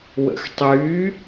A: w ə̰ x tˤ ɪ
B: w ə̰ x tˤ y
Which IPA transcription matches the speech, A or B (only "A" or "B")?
B